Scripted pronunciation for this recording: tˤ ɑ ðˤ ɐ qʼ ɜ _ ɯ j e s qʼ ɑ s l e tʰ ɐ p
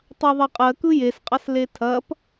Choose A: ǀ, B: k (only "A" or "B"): B